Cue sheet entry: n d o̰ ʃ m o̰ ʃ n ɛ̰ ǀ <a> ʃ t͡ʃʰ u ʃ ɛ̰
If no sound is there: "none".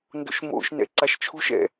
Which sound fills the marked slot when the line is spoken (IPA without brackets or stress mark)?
a